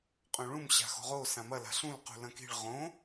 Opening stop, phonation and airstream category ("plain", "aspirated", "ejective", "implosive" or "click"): ejective